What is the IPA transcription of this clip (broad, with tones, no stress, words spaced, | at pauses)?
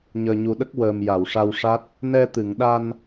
ɲəː˨˩ɲu˨˩ɗə˦˥k̚ wəː˨˩m ja˨˩˨wʂa˧wʂa˦˥t̚ | nɛ˧t̪ɨ˨˩˨ŋɗa˧n